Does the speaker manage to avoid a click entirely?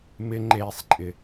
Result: no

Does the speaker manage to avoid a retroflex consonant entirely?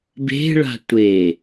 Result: no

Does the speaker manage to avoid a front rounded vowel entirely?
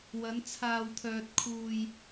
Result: no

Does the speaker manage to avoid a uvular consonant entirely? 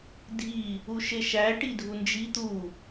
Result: yes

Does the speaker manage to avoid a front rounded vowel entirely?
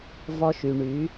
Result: no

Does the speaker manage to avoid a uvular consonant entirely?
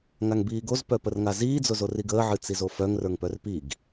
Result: yes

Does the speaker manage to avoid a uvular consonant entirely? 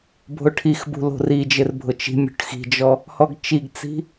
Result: yes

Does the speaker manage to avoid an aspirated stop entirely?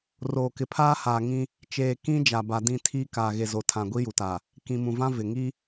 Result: no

